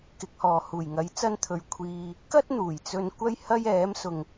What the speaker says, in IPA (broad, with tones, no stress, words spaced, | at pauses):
kɪ˨˥k̚hɔː˨ huː˨˩jŋɐ˨˥j t͡sɐ˥nt̪ʰɵ˧ɥ kʷʰiː˧ | kɐ˥t̚n̪uː˨˩jt͡sɵ˧n kʷɐ˥jhɐ˥jɛː˨˥msʊ˨ŋ